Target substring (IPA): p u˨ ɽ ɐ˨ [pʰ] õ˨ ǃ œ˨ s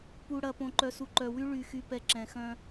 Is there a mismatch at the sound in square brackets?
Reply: yes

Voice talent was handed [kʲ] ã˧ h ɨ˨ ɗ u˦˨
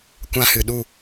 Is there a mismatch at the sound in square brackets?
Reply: yes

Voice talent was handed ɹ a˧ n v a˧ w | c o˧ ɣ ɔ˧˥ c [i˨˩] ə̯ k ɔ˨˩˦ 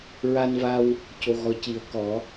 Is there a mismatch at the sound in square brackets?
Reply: yes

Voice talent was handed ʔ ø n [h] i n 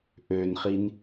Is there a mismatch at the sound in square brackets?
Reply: yes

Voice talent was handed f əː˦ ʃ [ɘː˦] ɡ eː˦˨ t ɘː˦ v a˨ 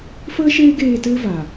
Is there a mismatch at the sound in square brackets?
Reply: yes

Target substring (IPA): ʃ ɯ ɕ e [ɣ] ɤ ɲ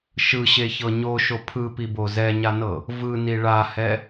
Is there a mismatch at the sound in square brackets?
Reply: yes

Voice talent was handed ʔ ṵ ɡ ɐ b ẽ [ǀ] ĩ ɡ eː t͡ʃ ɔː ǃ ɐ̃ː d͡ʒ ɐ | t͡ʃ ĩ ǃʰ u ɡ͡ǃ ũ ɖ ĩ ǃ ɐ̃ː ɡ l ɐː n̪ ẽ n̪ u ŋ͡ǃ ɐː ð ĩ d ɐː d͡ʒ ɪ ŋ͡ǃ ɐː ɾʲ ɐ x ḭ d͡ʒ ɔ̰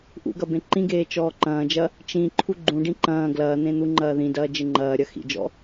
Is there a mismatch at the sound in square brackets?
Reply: yes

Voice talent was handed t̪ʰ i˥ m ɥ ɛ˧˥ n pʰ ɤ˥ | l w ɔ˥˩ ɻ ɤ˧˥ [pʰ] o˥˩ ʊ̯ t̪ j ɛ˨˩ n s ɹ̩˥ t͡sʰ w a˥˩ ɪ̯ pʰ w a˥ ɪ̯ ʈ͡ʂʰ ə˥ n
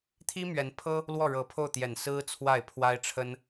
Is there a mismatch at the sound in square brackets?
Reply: no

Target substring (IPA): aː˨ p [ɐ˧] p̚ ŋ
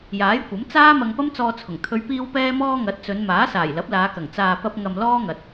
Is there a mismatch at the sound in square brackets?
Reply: no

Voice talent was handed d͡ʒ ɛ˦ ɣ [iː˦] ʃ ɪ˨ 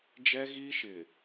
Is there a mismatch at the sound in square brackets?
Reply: yes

